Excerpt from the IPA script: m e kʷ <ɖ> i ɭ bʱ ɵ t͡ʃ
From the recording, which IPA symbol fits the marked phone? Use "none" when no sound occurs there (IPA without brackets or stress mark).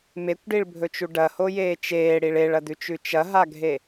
ɖ